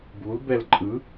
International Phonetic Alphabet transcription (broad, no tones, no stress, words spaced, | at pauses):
bulbɛl ǃʼɯ